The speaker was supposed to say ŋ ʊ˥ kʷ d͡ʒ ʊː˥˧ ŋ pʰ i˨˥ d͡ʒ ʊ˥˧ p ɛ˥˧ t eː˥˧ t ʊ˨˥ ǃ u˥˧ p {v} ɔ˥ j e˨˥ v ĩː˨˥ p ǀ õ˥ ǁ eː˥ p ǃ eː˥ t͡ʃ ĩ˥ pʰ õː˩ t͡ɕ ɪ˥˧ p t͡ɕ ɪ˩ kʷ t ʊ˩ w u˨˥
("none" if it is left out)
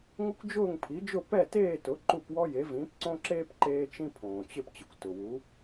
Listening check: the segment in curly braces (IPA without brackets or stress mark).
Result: w